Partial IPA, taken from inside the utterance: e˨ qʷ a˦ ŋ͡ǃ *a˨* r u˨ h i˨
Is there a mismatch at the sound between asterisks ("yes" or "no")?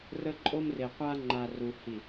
no